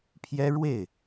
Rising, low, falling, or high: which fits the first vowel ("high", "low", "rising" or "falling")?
high